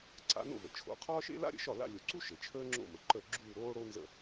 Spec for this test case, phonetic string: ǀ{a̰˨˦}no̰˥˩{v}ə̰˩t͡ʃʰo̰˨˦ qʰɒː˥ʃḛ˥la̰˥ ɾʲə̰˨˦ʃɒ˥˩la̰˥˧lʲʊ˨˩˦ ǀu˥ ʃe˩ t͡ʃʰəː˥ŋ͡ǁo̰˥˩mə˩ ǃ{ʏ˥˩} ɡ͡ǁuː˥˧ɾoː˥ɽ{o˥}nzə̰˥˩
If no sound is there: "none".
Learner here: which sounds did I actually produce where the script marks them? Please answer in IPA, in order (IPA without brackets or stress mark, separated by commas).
a̰˨˦, v, ə˥˩, o˥